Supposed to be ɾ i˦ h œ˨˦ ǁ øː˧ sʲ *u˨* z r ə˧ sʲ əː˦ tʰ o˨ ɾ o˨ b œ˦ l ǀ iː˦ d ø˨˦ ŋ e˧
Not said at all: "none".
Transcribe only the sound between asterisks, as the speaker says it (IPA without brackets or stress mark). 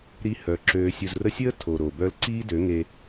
u˨